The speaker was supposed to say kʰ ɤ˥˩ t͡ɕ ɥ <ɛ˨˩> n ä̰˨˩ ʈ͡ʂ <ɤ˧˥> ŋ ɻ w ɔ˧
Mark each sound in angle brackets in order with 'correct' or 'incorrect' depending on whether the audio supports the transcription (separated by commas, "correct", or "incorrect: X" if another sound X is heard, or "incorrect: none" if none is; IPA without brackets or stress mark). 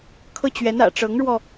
incorrect: ɛ˧˥, correct